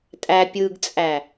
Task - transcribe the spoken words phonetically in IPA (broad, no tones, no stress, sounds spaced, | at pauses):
tʼ æ pʲ ɯ ɡ t͡sʼ æ